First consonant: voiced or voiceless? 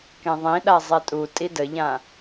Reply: voiceless